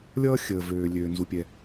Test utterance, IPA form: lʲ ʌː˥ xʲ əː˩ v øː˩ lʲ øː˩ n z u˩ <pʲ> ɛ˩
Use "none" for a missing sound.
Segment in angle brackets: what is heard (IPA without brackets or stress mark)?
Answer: pʲ